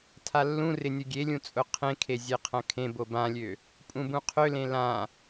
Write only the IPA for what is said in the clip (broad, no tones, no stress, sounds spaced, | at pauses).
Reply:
tʰ a lː ũ r ɪ nʲ ʊ ɡʲ e lʲ ũ t͡sʼ ʊ qʰ ẽ kʰ e zʲ e qʰ ɐ̃ kʰ ẽ b o b ã lʲ ø | pʼ ũ b ũ qʰ ø l ẽ l ã